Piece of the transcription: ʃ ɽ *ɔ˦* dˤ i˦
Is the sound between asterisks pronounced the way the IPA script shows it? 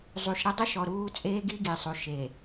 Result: no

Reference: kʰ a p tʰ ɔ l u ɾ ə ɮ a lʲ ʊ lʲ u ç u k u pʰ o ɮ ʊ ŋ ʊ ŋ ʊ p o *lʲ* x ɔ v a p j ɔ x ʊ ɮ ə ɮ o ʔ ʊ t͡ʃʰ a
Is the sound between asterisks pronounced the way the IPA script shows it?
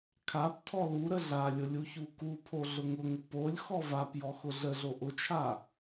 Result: yes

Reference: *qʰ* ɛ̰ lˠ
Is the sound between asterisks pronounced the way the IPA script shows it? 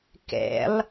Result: no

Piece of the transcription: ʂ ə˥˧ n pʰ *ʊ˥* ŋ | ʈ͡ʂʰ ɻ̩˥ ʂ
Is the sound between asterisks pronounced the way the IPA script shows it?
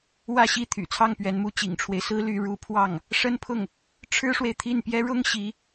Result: no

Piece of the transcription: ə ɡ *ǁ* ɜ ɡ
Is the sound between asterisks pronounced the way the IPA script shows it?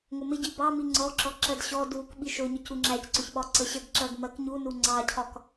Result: yes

